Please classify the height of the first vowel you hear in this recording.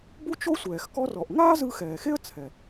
high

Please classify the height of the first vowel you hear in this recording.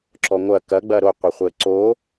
mid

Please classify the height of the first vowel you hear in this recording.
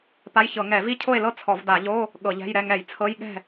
low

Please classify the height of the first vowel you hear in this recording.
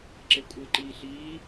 mid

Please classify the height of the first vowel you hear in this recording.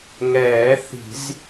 mid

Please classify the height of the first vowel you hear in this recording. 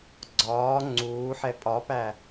low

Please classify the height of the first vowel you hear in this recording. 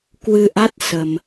high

